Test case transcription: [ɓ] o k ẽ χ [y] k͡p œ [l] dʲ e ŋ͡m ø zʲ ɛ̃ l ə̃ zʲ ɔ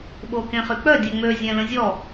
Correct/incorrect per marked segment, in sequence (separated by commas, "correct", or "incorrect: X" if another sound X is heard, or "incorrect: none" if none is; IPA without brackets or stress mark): correct, correct, incorrect: none